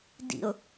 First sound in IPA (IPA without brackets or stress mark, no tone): d